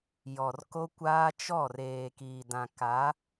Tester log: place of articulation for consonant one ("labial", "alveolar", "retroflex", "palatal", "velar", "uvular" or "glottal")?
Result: palatal